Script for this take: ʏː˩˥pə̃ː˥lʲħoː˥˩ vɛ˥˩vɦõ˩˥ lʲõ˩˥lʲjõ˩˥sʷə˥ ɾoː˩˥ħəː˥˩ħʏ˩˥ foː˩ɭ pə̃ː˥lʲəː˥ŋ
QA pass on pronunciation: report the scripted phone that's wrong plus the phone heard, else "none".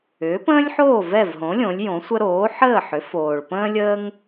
none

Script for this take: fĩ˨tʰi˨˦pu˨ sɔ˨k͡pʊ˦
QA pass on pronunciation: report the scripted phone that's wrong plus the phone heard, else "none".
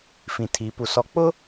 none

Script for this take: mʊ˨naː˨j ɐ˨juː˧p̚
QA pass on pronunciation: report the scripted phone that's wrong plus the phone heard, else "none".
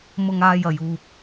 n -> ŋ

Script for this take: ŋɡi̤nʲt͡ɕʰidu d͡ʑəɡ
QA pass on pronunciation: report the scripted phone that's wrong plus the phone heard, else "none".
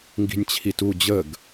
d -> t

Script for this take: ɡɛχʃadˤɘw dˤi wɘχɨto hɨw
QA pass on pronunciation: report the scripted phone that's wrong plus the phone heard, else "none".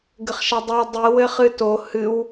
ɛ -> ɘ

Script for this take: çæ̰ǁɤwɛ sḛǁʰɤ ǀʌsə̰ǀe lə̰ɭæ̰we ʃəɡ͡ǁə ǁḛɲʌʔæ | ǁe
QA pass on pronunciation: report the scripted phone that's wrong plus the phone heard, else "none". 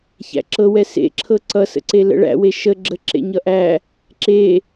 none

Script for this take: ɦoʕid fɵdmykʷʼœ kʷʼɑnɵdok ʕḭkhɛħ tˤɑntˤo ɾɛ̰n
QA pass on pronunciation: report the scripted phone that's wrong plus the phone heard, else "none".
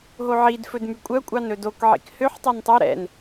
ɛ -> ø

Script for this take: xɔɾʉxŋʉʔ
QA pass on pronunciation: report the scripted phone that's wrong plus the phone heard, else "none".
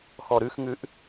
none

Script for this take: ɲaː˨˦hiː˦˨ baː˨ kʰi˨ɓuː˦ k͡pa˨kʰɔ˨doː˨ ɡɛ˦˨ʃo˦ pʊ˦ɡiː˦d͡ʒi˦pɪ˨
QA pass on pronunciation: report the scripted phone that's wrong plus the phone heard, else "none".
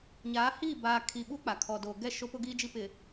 none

